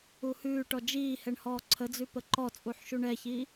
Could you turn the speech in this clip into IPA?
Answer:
uhʉːʈɔ d͡ʒiːhɛɳ hɔːǀʰəd͡zʉ pəǃɔt͡sʼuħ ʃuɳɛçiː

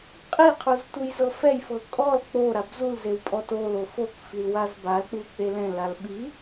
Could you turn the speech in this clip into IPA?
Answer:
qʼiqʰuz tujzɤfɛjfɤ kʼɔl k͡po ɾabzulzew pʼɔtolo fokfil wazbalk͡pu k͡pelɛ̃lal ɓi

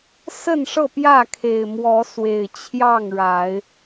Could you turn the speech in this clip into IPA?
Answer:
sə˥˨nʂɤ˥˨pjä˥˨ kʰe˨˩ɪ̯ mwɔ˨˦swe˨˩ɪ̯ t͡ɕʰjɑ˥˨ŋɻa˨˦ɪ̯

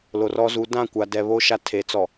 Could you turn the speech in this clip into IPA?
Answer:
lo˨rɔ˦zu˨˦ dã˦˨kʷa˨dɛ˨βo˦ ʃa˦tʰe˨˦t͡sɔ˨

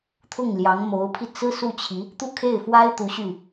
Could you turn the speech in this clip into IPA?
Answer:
t̪ʰʊ˥˩ŋljɑ˧˥ŋ mo˧˥ʊ̯pʰi˧t͡sɹ̩˥ su˥˩t͡ɕʰi˧˥ | t̪u˥˧kʰe˥˩ɪ̯ fwa˥ɪ̯t̪u˧˥ ɕy˥˩

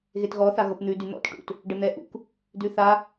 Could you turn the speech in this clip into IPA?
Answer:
ɣetɣɔ θaɣɤpn̪ʉ dyn̪ɔ̰t ʈṵt | ɖən̪ɛʔṵk | dʉθa

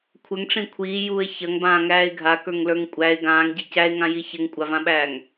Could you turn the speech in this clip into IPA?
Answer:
kʷʰɘŋʈ͡ʂĩ kʷʰiːjuːe̯ çɐŋbãːŋæːe̯ ɡʱakə˞ŋlə˞ŋ kʷʼæe̯ ɡãːŋɟi cæe̯ŋãji çɘŋkʷʼavãɓæːŋ

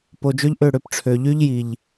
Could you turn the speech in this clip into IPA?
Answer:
po˨d͡ʒø˦ʎ ʔø˦˨ɽø˧pʈ͡ʂʰø˨ ʎy˦ʎ ji˨ʎ

